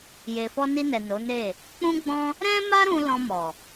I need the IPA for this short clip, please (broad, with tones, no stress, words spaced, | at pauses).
je˨fɔ˧ni˧nɛ˨ no˨˦ne˦˨ | k͡pũ˦ɡ͡bɔ̃˦ | ɾɛ̃˦ma˦ɾũ˧ lɔ̃˧mɔ˨